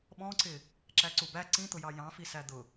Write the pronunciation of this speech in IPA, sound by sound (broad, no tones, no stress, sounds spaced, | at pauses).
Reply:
ɓ ɔ̃ ǀ ɪ | ǁ æ ǀ u b æ ǀ ĩ t̪ ʊ j ɑ j ɑ̃ f i s æ d̪ ʊ